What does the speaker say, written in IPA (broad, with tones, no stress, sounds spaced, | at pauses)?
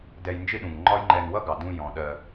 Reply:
d ɛ˧ j n d͡ʒ ɪ˦ ɗ ũ˨ ŋ ŋ͡ǃ ɒ˦ j ŋ͡ǃ ɛ˧ n w ʌ˦ ɡ ɑ˨ d ũ˧ j ɔ̃˨ ɗ ɜ˧